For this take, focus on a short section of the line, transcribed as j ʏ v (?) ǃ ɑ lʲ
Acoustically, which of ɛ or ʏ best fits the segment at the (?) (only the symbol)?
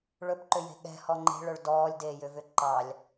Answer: ʏ